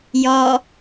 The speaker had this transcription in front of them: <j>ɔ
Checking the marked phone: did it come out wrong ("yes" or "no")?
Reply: no